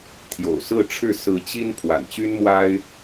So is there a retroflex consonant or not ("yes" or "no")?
yes